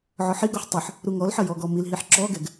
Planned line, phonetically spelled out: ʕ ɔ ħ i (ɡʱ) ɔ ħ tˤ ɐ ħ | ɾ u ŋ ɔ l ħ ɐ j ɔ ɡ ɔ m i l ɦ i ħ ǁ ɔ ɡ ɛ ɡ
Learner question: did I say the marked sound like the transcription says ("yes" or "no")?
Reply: no